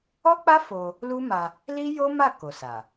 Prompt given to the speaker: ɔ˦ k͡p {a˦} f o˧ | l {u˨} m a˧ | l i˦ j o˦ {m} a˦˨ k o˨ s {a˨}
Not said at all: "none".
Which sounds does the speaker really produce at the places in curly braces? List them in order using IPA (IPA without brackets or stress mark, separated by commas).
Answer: a˦, u˦, m, a˨